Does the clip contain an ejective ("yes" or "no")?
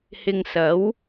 no